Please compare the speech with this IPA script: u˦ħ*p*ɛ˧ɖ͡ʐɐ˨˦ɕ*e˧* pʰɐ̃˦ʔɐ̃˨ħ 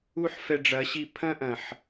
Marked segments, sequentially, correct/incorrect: incorrect: f, incorrect: i˧

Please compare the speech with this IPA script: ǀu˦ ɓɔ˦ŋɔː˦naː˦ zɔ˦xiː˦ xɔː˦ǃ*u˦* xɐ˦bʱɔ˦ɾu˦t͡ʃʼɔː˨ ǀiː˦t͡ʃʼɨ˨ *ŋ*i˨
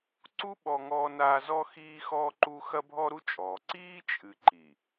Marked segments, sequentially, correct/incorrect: correct, incorrect: ǃ

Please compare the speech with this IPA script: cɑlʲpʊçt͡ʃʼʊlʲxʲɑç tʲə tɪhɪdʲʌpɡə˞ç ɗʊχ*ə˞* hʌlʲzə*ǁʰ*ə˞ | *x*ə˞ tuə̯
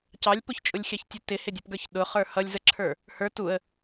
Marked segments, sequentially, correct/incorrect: correct, correct, incorrect: h

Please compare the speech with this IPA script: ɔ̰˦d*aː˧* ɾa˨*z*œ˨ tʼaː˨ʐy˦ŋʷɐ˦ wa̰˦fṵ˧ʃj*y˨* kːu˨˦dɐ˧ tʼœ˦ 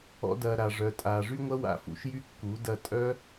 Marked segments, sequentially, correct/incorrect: incorrect: ɐː˧, incorrect: ʐ, incorrect: y˦

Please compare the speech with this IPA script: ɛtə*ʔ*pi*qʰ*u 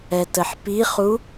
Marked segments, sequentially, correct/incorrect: incorrect: ħ, incorrect: χ

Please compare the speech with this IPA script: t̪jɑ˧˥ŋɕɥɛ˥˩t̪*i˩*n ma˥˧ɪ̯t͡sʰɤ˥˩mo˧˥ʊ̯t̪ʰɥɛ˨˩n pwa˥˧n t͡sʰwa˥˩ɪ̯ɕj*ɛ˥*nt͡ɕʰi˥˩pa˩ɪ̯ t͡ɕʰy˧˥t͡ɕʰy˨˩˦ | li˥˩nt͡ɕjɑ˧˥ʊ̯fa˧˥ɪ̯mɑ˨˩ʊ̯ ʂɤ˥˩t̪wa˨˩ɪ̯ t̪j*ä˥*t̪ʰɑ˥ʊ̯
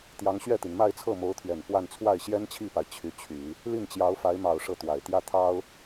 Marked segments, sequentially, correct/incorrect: correct, correct, incorrect: ä˥˩

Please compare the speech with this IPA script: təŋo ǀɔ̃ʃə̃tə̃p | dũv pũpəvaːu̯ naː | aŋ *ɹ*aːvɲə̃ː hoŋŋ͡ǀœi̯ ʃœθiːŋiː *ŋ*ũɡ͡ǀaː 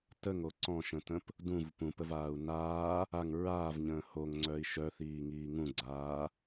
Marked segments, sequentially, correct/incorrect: correct, correct

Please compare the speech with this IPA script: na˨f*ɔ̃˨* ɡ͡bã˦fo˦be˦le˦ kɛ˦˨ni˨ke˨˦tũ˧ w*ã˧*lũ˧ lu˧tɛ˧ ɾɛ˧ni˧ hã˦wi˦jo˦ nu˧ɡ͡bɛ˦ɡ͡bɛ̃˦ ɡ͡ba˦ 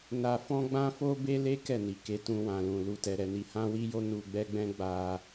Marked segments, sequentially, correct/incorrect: incorrect: ɔ̃˧, correct

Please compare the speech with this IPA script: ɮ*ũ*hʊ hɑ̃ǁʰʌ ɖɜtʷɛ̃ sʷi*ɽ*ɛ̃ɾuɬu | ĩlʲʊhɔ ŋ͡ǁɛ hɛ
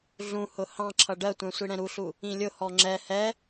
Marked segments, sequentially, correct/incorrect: correct, correct

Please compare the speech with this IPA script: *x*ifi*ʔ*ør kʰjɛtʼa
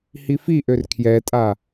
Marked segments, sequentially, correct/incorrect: incorrect: h, correct

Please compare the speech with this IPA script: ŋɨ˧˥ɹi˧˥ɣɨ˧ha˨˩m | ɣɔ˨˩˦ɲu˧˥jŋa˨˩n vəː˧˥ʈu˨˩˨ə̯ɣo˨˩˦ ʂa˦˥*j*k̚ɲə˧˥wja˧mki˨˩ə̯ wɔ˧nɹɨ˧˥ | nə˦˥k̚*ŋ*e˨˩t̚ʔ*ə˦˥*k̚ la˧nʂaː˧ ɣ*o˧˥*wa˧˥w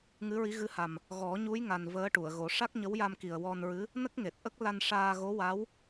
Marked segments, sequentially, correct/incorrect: incorrect: none, correct, correct, correct

